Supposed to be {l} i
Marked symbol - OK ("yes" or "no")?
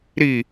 no